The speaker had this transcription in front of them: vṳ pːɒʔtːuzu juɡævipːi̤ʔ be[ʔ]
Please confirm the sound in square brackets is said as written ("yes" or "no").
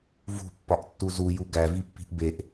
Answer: yes